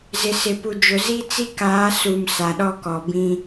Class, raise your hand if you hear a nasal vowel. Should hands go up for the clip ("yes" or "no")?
yes